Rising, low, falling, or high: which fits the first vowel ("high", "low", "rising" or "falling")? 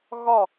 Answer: falling